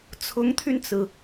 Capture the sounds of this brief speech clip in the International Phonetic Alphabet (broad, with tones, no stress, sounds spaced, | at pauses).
t͡sʰ ʊ˧˥ ŋ t̪ʰ y˧ n t͡s ɹ̩˩